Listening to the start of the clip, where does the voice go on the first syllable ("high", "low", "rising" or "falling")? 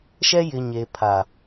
high